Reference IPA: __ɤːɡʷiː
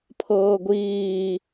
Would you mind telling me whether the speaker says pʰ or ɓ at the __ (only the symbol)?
pʰ